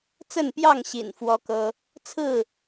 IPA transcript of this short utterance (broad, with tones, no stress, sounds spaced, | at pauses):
t͡s ə˥˨ n p j ɑ˥˨ ŋ ɕ ḭ˨˩ n f w ɔ˦ k ɤ˦ | t͡sʰ ɹ̩˥˨